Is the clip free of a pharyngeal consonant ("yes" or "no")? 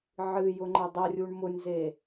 no